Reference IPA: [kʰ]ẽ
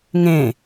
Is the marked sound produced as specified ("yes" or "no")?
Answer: no